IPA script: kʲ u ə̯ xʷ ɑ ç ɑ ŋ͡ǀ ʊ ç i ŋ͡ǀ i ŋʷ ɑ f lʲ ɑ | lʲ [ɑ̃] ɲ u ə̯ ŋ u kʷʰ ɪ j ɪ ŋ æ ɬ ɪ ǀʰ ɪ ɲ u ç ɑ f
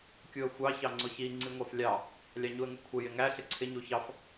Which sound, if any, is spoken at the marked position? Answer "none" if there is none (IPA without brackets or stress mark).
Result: ɑ